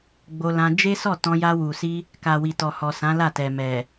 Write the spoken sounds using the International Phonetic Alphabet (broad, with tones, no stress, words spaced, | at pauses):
ɡ͡bo˧lã˧ d͡ʒe˦sɔ˦˨tɔ̃˧ ja˧wu˨si˧ | ka˨wi˨tɔ˨hɔ˨ sã˨˦la˦˨tɛ˨ mɛ˨